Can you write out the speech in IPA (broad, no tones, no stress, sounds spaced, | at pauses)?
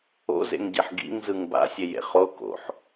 o̰ z ḛ ŋ ɟ e ħ ɡ ḭ ŋ z ɯ ŋ b a̰ sʲ e j ḛ χ o k o̰ ħ